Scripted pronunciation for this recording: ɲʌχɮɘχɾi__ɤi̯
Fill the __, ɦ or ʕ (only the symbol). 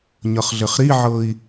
ʕ